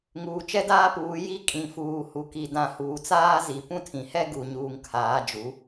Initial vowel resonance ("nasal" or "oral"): oral